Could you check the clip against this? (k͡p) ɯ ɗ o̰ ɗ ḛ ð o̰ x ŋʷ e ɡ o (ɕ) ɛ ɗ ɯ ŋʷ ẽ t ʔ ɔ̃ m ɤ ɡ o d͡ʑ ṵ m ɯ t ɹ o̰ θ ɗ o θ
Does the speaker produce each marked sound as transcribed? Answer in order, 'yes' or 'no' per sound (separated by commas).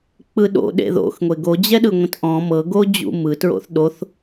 yes, no